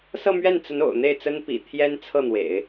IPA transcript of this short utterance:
s ɤ˥˧ m ɥ ɛ˥˩ n t͡s ə˧˥ n o̰˨˩ ʊ̯ n̪ e˥˩ ɪ̯ t͡s ə˥ n p ḭ˨˩ t̪ʰ j ɛ˥ n t͡sʰ ɤ˥˩ n̪ w ḛ˨˩˦ ɪ̯

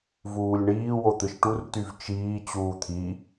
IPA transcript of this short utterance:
v uː lʲ ɳ iː w o t̪ ɯ ʃ ʈ u r t y v t͡ʃ iː t͡ɕ uː t̪ʰ i

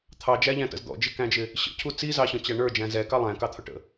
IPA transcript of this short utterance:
t̪ʰ ɑ d͡ʒ æ ʎ æ̃ t ə̰ z d̪ ɔ̰ d͡ʒ ɪ k æ̃ d͡ʒ ɪ | ɕ ə̰ cʰ u t͡s i z ɑ ɕ ɔ̃ t͡ɕ æ ɳ ə˞ d͡ʒ æ̃ z ɛ k ɑ lˠ æ̃ k ɑ t̪ʰ ʊ ʈ ə̰

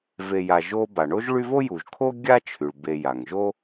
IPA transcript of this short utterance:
v e˨ j a˨ ʒ o˦ b a˩ ɳ o˥ ʒ ɭ y˦ v o˥ j u˩ ʒ kʰ o˥ ɡʲ a˥ t͡ʃʰ y˩ ɭ b e˨ j a˩ ŋ ʒ o˥

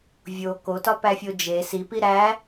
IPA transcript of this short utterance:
vʲ o k o t ɒ p æ fʲ o d͡ʒ e s i p i ɾ æ

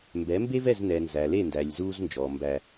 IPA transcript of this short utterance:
m b ɛ˨˦ m b e˦ v ɛ˦˨ z n ɛː˨ n z æ˨ l e˦˨ n d æ˨ lʲ z uː˦ z n d͡ʒ ɔ˨ m b æ˦

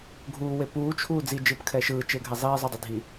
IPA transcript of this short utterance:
ɡʱ uː w e p uː t͡ʃʰ uː d͡z i d͡ʒ ɯ p kʰ ɛ ʃ ɯː t͡ʃ e ɡʱ ɛ zˤ iː zˤ u dˤ e dʱ i

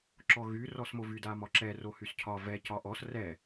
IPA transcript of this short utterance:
ǁ ɔ ɣ y r ɔ s m o v y d a m ɒ ǁ ɛ r o h y s cʰ ɒ v ɛ c ɒ ʔ ɔ s r ɛ

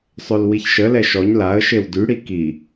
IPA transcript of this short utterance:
sˤ ø l w i ç ʃ ə l ɛ ʃ ɔ ɲ l a ə̯ ʃ e w d y ɽ i k i

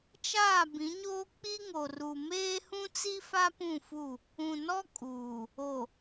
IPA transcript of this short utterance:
t͡ʃ aː˦˨ b ĩ˨˦ ɲ oː˦ k͡p i˦ ŋ o˨ r u˨ m eː˦ h ũ˦ t͡s i˦ f a˦ p ũ˦˨ f u˦˨ | ũ˨ n ɔ˦ kʼ uː˨ | o˨

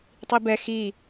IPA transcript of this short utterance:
tˤ i b ɛ x i

